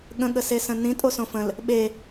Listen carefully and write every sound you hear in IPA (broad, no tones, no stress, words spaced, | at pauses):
ɠə̃ɠəsesə̃ nĩtʼosõ fə̃l | ɓe